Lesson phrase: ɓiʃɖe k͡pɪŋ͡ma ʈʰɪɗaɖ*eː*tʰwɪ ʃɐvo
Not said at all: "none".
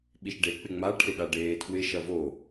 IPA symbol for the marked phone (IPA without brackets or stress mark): eː